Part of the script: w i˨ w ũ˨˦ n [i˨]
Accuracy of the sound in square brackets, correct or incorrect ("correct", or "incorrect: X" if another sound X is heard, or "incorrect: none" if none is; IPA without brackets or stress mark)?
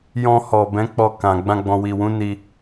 incorrect: i˧